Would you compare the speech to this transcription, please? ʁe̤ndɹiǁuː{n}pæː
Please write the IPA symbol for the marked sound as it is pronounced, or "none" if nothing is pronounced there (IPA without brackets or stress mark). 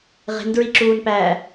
n